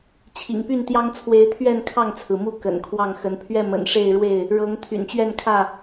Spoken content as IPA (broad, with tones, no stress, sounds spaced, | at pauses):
t͡ɕʰ ḭ˨˩ ŋ p y˥˨ n t̪ j ɑ˦ ŋ t͡sʰ w e˨˦ ɪ̯ t̪ʰ ɥ ɛ˥˨ n kʰ ɑ˥˨ ŋ t͡sʰ ɹ̩˩ m u˦ k ə̰˨˩ n kʰ w ɑ˥˨ ŋ x ə˨˦ n pʰ ɥ ɛ˥˨ m ə̰˨˩ n ʂ e˥˨ ɪ̯ ɻ w e˥˨ ɪ̯ | ɻ ɤ˨˦ ŋ t̪ʰ y̰˨˩ n t͡ɕ ɥ ɛ˥˨ n kʰ ä˥˨